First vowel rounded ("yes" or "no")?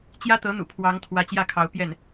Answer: no